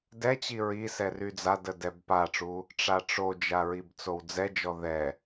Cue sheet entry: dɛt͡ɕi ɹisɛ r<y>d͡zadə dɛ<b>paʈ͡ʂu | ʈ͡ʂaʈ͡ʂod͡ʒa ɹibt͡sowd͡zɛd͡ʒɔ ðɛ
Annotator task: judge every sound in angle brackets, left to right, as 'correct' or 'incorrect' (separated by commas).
correct, correct